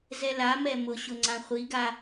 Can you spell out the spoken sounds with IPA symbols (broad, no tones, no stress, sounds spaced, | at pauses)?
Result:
z ɛ l a m ɛ m ʊ ɕ ʊ ŋ͡ǀ ã χʷ i ɡ a